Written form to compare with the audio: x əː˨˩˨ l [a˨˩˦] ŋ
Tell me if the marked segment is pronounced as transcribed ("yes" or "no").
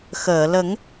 no